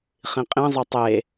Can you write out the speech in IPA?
χĩqʼĩzˤə tˤe

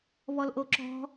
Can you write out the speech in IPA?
βɔlʔoǁɔ̤

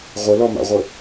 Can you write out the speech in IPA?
ʁʷəlɔma̰ʁʷə

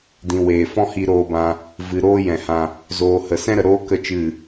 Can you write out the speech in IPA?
dĩ˨weː˨ fɔ̃˦hi˧ɾoː˧bã˧ | vɨ˨ɾoː˦jɛ̃˨hã˧ | zoː˨hə˨ sɛ̃˦ɾə˨ɾoː˦ kə˦t͡ʃɨ˦˨

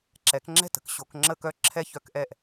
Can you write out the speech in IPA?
ǁɛ˨˩˦kŋ͡ǁɛ̤˥˩tə̤˨˩˦k ɕo˨˩˦kŋ͡ǁə˥˧kœ˥˧ǁʰɛ˥˧ çœ˥˧kʔɛ˥˩ʔ

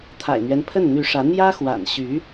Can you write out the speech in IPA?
t̪ʰa̰˨˩ɪ̯n̪ɥɛ˦n pʰə˥˩nn̪y˧˥ʂä˧˥ n̪jä˥xwa̰˨˩nɕy˧˥

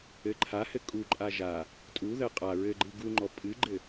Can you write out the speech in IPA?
ɘ ǃʰahɘ kʼuǃʼa ʒa | tʼuðɜ qʼa ɹɘɡ͡ǃɨ ɡuŋ͡ǃɔ pʼɨɡ͡ǃɘ

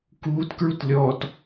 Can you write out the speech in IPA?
kuːtkɹut lʲɔt

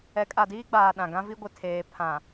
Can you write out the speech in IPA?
ɛ˨˦kʼa˨diː˦ɡ͡baː˨ ɗã˨ɡã˦vi˦ ɡʷɪ˨tʰeː˨ pʰã˨

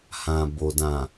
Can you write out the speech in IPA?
hã˨bo˨dã˨

